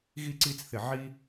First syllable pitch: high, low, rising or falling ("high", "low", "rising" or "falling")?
high